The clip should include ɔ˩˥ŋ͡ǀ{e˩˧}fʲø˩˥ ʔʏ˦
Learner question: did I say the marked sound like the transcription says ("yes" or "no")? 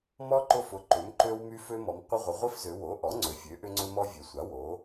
no